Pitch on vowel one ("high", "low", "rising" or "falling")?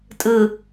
low